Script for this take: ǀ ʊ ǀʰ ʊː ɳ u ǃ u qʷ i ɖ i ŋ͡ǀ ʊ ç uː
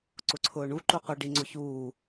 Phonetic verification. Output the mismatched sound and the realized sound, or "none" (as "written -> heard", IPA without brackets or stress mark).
none